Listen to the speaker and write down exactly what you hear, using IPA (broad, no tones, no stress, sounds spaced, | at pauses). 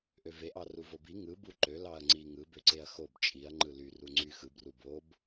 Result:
ʔ ø v e ʔ ɑ r u v o b i ŋ ɯ b u ǃ ø l ɑ ɐ̯ ŋ͡ǀ i ŋ ɯ b ø ǀ e ɐ̯ x o b t͡ʃʼ i ɐ̯ ŋ͡ǃ ɯ l y r u ŋ͡ǀ y x ɯ b r u b o b